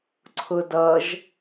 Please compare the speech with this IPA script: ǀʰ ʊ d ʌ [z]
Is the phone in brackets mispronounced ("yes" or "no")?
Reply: yes